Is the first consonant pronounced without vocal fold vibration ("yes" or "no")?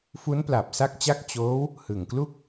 yes